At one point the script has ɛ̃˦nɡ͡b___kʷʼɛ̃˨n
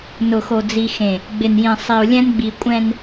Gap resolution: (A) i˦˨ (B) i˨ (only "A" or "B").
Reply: B